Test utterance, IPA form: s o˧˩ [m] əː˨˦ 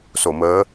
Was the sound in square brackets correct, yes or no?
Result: yes